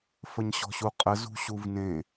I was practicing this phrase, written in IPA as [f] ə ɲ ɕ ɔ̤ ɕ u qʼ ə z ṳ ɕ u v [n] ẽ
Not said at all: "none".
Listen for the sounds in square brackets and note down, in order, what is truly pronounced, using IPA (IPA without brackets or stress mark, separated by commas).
f, n